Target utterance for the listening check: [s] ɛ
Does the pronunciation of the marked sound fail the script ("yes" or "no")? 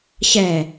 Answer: yes